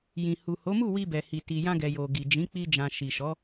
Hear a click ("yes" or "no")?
no